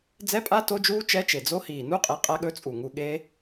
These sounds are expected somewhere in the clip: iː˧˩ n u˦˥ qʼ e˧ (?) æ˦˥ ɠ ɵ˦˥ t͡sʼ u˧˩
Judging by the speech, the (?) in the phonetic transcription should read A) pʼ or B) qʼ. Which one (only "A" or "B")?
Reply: B